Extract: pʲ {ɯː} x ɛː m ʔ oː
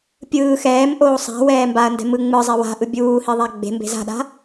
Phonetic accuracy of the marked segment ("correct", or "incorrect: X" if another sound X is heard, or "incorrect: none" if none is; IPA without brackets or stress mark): correct